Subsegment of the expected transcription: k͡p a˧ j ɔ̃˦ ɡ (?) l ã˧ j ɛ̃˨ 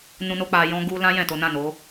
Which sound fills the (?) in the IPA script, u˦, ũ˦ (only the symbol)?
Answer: u˦